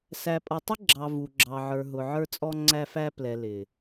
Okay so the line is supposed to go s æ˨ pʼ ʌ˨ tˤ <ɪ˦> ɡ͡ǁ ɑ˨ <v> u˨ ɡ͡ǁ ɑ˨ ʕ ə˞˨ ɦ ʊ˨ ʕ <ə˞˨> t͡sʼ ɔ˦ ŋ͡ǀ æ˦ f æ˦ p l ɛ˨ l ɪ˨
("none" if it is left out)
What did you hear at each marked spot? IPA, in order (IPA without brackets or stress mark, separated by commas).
ɪ˦, v, ə˞˦